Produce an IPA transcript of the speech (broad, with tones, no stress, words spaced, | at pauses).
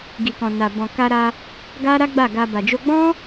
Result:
ɡi˨kɔ̃˨na˨ bɔ̃˨ka˧ɾa˧ | ɡa˦ ɾa˦ɡ͡ba˦˨ɡa˧ ba˨d͡ʒo˧ɡ͡bɔ̃˦